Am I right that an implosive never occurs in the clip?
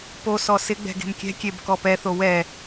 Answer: yes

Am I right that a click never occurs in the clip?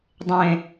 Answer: yes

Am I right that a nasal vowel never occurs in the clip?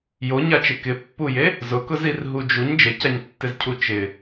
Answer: yes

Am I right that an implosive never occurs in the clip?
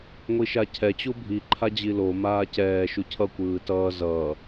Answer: yes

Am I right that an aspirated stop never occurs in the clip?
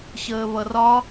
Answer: yes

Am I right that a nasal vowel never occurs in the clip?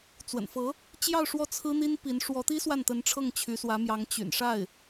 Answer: yes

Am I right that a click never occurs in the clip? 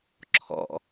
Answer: no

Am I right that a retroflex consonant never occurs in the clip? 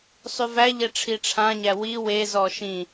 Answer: no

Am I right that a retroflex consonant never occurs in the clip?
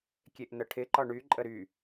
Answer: no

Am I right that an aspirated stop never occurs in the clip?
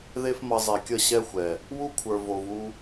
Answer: no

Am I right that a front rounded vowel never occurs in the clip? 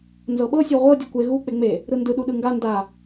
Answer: yes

